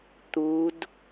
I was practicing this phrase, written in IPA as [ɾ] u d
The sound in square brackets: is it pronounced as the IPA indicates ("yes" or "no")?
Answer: no